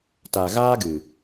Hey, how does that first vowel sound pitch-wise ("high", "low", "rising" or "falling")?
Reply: low